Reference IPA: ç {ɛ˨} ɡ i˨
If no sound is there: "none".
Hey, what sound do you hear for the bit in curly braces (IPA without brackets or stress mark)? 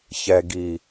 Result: ɛ˨